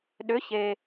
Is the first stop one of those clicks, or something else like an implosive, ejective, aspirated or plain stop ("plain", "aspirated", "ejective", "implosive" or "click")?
implosive